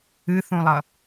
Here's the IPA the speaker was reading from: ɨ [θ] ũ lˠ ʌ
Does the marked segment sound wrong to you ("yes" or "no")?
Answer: no